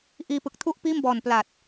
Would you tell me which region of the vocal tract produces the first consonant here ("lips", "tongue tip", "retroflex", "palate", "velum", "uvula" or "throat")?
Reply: throat